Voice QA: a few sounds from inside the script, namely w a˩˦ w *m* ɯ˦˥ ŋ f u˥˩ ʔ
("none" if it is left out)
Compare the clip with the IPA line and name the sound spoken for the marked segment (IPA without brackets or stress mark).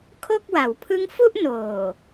pʰ